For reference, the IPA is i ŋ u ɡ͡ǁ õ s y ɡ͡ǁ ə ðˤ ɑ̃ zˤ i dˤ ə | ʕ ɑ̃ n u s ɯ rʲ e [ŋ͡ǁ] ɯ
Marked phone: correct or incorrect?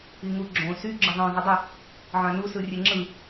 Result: correct